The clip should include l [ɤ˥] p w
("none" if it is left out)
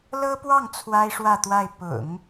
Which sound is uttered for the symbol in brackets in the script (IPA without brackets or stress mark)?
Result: ɤ˥